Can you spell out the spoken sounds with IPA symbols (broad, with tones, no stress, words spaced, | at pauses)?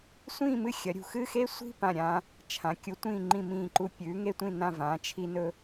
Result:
sʷĩː˥˧mɨ˥˧xʲɐ˩˧ɾʲṳ˧˩ xɨ˥˧xe˥sʷi̤˥˧ pã˧˩ɾʲãː˧ | t͡ʃʰã˩˧ kʲu˩˧tʷĩː˧˩ŋ͡ǃĩ˧˩ mĩː˧˩ǃu˧ pʲʉː˩˧ŋe˧tʷĩ˧˩nã˧˩ vãː˩˧t͡ʃʰi˧nɵ˧